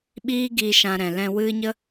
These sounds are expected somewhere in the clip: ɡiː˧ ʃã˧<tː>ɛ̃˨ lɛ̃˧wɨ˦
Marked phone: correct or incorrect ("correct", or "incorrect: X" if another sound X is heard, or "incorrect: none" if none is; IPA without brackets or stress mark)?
incorrect: ɾ